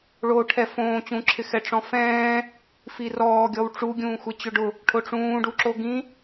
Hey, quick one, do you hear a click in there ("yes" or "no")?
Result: yes